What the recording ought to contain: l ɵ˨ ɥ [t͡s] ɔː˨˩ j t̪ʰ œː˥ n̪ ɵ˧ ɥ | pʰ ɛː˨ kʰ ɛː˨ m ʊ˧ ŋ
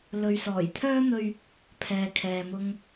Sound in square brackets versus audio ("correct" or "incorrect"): incorrect